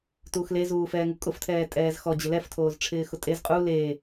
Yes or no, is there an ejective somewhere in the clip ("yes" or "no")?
yes